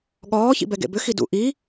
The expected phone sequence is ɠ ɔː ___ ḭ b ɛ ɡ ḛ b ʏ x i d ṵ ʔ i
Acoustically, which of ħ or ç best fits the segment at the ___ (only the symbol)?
ç